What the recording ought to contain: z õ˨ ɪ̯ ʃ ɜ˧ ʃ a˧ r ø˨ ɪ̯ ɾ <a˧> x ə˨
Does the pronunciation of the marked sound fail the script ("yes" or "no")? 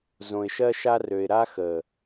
no